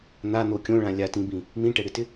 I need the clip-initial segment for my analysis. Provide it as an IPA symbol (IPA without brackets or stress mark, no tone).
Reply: n̪